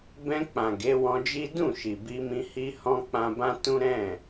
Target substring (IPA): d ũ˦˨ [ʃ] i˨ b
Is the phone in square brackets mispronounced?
no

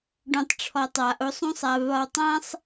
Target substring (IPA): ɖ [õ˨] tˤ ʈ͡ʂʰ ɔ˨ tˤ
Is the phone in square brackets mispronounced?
no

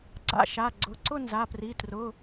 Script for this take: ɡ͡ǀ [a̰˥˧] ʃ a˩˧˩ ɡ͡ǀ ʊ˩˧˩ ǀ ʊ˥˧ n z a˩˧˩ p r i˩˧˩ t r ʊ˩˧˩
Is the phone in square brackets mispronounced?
no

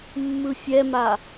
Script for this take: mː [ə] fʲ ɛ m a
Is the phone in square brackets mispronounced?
yes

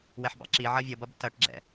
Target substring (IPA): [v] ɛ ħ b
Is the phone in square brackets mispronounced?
yes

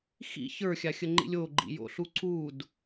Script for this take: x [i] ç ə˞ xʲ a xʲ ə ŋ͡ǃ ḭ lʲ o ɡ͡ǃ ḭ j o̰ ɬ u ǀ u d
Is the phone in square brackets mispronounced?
yes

